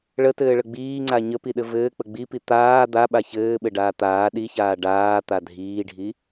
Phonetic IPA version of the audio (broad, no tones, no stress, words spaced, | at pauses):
ɭətɘːɭə ɡ͡biːŋ͡ǀa ɲəpiɗɘ vɘːk͡pə ɡ͡bipi t̪aː d̪aɓa çɘːɓɘɖaː t̪aː ɗiçaː ɖaːt̪a dʱiːɖʱi